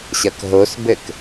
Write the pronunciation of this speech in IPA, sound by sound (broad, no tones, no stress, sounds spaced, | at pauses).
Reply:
ɕ ɐ k ɦ o s b ɘ k